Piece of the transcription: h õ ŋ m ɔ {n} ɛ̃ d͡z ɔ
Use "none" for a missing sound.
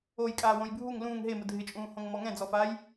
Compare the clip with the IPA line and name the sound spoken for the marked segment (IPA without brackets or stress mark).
ŋ